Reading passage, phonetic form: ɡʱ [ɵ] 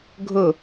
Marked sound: correct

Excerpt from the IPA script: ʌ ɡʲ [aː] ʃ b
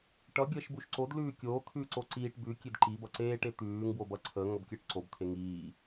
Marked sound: incorrect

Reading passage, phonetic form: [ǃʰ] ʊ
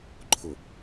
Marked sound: correct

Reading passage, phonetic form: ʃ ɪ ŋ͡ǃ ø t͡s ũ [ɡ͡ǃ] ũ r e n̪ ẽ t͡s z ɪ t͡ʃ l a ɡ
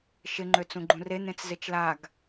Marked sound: correct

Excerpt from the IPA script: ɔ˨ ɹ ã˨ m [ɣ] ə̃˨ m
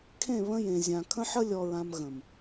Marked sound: correct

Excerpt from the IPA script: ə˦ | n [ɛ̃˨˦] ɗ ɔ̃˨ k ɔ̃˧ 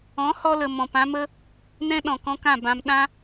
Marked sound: incorrect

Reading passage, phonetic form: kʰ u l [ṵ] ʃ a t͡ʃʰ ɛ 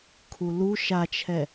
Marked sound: incorrect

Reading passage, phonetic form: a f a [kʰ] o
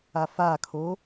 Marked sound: correct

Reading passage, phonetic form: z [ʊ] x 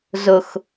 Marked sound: correct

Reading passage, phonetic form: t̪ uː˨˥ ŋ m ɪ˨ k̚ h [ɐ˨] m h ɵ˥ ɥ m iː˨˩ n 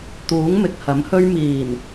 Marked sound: incorrect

